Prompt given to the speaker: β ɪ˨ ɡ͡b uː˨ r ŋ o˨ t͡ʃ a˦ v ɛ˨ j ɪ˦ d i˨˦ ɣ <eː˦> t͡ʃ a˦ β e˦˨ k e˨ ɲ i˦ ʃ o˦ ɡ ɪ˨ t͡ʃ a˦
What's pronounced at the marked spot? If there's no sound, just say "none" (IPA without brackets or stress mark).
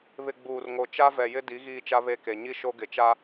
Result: iː˦